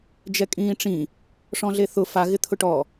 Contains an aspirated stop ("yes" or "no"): yes